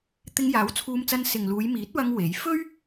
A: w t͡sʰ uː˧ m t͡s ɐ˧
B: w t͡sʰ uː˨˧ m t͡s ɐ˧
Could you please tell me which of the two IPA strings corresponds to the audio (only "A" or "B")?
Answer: A